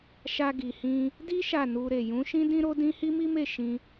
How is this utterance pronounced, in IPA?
ʃ a˧ ɡ i˨ h ĩ˧ | d i˦ ʃ a˦˨ n u˧ ɾ e˨ j ũ˨˦ ʃ ĩ˦ d ĩ˦ ɾ o˦ d ĩ˦ h i˦ m i˦ m e˦˨ ʃ ĩ˧

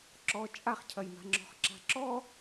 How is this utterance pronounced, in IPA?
ǁ ɔ t͡ʃʼ a χ cʰ ɐ j m a̤ ŋ͡ǁ ɔ̤ χ ǁ a̤ ǁ ɔ

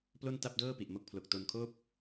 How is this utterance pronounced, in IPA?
p l o˥˩ n t a˥˩ p̚ d ɤː˥˩ p i˨˩ ʔ m o˦˥ k̚ pʰ l o˨˩ k̚ t o˧ n kʰ oː˥˩ p̚

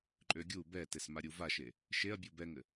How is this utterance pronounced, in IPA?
ǃʼ ø ɡʲ u b ɛ t e s m a ɾʲ u v a ʃ e | ʃ e ɐ̯ bʲ u b ɛ ŋ ɘ

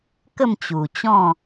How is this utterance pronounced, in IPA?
k ə˥˧ m t͡ɕ u˨˩ t͡ɕ ɔ̃˥˧

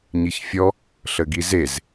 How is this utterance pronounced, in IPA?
ɲ i ç fʲ ɔ | ɬ ə ɡ i z e z

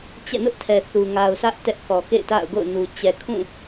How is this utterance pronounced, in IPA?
t͡ɕ ɛ̰˦˨ n ʊ˦ ʔ tʰ ɛ˨ θ u˨ ŋ a˨ ʊ̯ s ä˦ ʔ t ɛ˦ ʔ k ɔ˨ k ḛ˦˨ ɪ̯ t a̰˦˨ ʊ̯ ɡ o̰˦˨ ʊ̯ n u˨ t͡ɕ ɛ˨ kʰ ũ˦˨

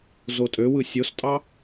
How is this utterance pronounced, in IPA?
z o tʼ ø w ɯ sʲ o s tʼ ɑ

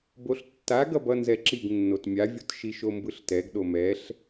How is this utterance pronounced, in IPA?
b o ɬ tː a ɡ ʌ b ʌ n z ɛ ǁ i ɡ nː o t mʲ a vʲ o t ʃ i ʃ o m b ɯ ɬ t ɛ ɡ ɗ o m ɛ ɬ

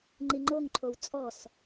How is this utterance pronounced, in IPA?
ŋ͡ǃ i ŋ͡ǃ o ŋ ǃʰ o w t͡sʼ ɔ s

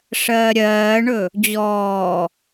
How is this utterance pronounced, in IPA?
ʂ ɜː ɾʲ ɜː ɳ ɵ | d͡ʑ ɔː

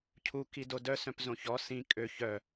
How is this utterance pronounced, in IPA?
cʰ u k i d o d œ s œ̃ p z õ ç ɔ s ĩ kʼ ø ç œ

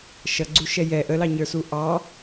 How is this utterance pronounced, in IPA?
ʃ ʌ ɡ͡ǀ u ʃ ɛ j ɛ ʔ ə l ɑ ɲ ə˞ s u ʔ ɑ

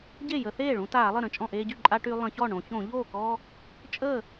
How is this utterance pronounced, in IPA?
ɟ e˥˩ j ə˧˩˧ θ eː˥˩ ɭ ũ˦ t aː˧˩˧ lˠ ə˥˩ ɾ ə̃˥˩ t͡ʃʼ ɔ̃˥˩ ʔ eː˦ ɟ y˥˩ ǃʼ a˦ ʈ y˦ lˠ ə̃˧˩˧ ç ɔ˥˩ ɳ õ˧˩˧ ç õ˧˩˧ ʎ oː˥˩ k ɔː˦ | t͡ʃʼ əː˥˩

